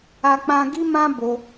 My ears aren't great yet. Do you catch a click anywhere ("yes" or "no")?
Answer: no